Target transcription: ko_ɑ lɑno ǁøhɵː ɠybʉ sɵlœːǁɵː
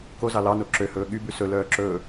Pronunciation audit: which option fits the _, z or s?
z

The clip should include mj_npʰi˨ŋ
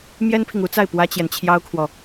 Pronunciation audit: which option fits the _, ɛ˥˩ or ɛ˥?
ɛ˥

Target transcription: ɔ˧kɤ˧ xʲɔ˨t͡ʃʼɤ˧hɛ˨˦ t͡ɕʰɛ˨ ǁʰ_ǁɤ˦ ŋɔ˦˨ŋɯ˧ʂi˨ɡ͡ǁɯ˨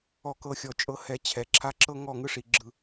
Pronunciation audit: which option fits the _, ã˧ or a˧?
a˧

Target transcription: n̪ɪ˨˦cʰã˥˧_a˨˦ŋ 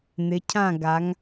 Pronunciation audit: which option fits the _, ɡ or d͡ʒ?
ɡ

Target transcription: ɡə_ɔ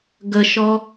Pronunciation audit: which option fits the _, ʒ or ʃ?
ʃ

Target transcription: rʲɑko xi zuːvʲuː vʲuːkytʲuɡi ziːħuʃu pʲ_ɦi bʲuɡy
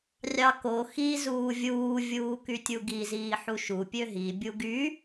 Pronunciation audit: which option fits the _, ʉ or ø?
ø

